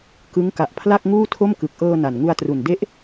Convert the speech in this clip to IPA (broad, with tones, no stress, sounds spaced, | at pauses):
k ɯ˦˥ ŋ k a˨˩ ʔ pʰ l a˥˩ k̚ ŋ uː˥˩ tʰ o˥˩ m k ɯ˨˩ k̚ ʔ ɤː˧ n a˨˩ n ŋ u˧ a̯ t r u˨˩ n d e˦˥ ʔ